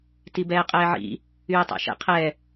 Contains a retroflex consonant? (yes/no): no